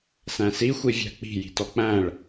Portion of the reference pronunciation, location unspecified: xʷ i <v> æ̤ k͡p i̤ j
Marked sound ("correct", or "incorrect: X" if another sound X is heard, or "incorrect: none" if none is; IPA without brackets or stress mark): incorrect: vʲ